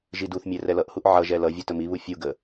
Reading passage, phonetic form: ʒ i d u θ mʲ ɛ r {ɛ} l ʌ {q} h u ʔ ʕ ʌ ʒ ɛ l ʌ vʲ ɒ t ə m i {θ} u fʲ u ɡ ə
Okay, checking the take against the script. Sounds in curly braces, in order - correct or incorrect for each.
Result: correct, incorrect: ʔ, incorrect: β

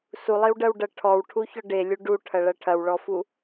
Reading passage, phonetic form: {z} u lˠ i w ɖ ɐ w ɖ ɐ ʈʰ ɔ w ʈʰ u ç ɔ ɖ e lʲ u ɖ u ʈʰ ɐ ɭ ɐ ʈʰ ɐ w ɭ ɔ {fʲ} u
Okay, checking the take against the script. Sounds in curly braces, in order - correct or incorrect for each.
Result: incorrect: s, incorrect: f

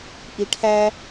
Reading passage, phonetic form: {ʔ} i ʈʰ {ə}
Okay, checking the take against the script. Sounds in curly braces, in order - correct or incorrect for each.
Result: correct, incorrect: æ

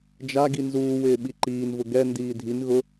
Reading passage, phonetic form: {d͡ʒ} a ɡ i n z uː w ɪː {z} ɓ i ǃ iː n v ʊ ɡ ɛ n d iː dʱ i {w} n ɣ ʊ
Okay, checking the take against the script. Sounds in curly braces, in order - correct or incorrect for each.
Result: correct, incorrect: none, incorrect: none

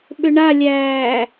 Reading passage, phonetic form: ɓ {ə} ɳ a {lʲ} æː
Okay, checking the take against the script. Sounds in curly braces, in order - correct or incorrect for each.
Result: incorrect: ʏ, correct

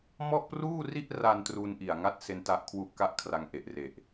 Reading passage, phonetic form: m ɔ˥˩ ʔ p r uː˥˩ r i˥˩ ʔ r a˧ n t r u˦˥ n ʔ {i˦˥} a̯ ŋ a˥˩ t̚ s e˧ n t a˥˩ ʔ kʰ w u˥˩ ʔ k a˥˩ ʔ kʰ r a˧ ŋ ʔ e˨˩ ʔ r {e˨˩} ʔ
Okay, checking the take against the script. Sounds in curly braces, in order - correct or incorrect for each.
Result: incorrect: i˨˩, correct

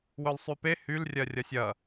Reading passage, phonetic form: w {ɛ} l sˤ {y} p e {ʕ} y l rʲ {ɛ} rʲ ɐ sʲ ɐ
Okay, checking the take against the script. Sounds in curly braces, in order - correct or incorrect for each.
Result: incorrect: œ, correct, incorrect: h, incorrect: ɜ

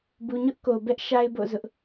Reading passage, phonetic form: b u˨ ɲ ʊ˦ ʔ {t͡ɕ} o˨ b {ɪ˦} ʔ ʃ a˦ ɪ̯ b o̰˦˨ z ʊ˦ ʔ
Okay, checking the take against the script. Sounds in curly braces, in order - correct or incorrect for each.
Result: incorrect: k, incorrect: ɛ˦

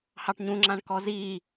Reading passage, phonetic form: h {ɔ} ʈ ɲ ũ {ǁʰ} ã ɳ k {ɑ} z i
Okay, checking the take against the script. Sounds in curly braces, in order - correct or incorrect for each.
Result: incorrect: ɑ, incorrect: ŋ͡ǁ, incorrect: ɔ

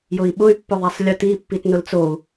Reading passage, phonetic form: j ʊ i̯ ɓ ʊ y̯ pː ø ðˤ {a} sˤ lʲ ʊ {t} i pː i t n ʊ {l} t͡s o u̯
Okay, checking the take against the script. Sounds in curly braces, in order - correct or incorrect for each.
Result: correct, correct, correct

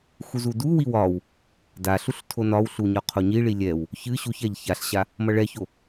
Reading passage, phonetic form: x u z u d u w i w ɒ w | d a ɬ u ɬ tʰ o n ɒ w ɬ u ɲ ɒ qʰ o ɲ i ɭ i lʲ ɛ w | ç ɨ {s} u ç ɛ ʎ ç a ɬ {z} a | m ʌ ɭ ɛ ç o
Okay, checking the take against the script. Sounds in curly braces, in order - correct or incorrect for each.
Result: incorrect: ɕ, incorrect: ɕ

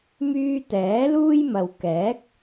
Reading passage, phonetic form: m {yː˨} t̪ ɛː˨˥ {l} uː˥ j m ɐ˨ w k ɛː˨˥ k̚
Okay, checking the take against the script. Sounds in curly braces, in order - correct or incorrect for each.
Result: incorrect: yː˧, correct

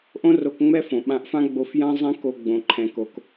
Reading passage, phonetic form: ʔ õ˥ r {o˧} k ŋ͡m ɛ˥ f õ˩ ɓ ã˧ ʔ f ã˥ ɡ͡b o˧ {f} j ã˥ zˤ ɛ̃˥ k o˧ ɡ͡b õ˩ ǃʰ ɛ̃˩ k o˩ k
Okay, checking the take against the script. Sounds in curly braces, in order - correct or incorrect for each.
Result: correct, correct

